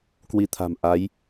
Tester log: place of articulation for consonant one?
velar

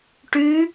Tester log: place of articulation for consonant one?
retroflex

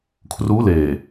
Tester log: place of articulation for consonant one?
velar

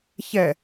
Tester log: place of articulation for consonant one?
palatal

